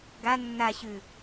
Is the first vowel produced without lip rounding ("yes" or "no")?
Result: yes